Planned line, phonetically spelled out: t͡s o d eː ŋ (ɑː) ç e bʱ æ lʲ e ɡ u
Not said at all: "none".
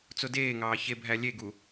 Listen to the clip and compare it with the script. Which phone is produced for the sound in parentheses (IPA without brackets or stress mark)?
ɑː